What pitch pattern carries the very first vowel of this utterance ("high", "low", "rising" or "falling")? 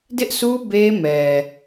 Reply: high